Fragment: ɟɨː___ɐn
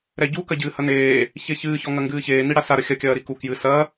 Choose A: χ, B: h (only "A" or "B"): B